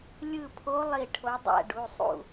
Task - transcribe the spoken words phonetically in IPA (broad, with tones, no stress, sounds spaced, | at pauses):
lʲ ɯ˦˨ pʰ o˧˥ lˠ i˦˨ ʈʰ o˧˥ dˤ æ̰˦˨ ɖ u˩˧˩ sˤ ṵ˦˨